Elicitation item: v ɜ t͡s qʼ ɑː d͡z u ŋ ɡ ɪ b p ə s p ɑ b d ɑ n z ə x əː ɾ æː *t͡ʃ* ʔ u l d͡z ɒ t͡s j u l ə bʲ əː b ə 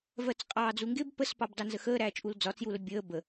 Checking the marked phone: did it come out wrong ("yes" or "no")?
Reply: no